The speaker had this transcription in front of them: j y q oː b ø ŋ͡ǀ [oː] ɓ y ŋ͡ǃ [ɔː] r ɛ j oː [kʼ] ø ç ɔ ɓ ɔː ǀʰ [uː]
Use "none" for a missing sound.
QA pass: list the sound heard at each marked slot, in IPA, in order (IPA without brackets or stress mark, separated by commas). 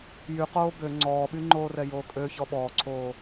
ɔː, oː, kʼ, oː